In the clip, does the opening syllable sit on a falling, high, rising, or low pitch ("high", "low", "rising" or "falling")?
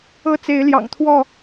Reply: high